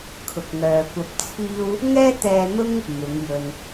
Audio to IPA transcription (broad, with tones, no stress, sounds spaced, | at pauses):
kʰ ʊ˨ k̚ ŋ œː˨ kʷ ɐ˧ p̚ t͡sʰ iː˥ w | ŋ ɛː˥ t̪ ɛː˧ n̪ ʊ˥ ŋ | m ɪ˨˥ ŋ j ɵ˧ n